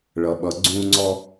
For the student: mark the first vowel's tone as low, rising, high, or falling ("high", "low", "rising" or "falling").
low